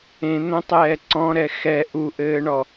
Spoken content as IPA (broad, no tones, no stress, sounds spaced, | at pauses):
ẽ n̪ õ tˤ ɛː ǀ ɔ̃ ɾ ɛ x ɛ ʔ u ʔ ɘː ɳ ɔ